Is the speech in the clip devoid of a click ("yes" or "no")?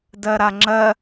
no